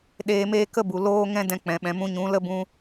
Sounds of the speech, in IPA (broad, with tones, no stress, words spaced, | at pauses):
ɗeː˧meː˦ kə˦bu˨ loː˦ŋɛ̃˦ dɛ̃˧k͡pɛ̃˨ ɓɛ̃˨mũ˧ɲũ˨˦ lə˦ bũ˧